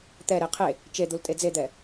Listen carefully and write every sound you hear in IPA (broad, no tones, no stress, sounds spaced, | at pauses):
t̪ ɛ ɾ e qʰ e | t͡ʃ e d̪ u l tʼ e d͡z e d̪ ɛ